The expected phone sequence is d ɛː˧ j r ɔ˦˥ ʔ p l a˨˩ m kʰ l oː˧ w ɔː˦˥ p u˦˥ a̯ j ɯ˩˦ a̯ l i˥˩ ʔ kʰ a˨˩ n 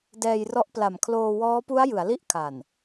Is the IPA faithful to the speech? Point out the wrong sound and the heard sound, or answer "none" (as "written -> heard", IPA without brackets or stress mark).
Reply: none